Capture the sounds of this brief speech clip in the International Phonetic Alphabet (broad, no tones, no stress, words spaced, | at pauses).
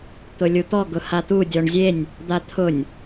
t̪ʊlʲut̪ɔ ɡʊhat̪u dʲɔɳzʲenʲ | d̪at̪ʰʊnʲ